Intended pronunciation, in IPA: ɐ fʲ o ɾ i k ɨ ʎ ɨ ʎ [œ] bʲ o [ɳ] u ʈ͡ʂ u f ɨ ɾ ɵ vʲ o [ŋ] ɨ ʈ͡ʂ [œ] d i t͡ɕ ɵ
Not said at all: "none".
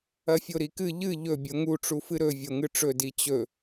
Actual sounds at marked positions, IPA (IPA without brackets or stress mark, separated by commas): ɵ, ŋ, ŋ, ɵ